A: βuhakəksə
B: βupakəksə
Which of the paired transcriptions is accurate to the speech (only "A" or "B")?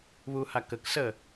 A